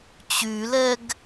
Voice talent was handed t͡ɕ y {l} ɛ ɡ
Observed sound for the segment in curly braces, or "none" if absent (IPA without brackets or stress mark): l